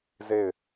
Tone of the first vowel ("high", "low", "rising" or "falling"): falling